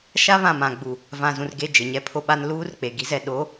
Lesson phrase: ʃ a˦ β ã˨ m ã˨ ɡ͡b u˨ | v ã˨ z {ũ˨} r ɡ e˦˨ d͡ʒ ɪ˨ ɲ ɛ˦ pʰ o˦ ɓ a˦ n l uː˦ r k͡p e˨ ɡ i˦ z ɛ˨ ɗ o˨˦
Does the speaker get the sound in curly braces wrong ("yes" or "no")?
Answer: no